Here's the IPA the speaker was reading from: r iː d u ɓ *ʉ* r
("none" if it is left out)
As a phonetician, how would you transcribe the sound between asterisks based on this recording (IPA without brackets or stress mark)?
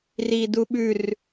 ʉ